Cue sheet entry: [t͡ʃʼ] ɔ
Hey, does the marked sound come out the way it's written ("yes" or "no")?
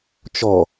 no